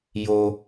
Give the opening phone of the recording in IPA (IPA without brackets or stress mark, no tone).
j